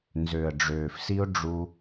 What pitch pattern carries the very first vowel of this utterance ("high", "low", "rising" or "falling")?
low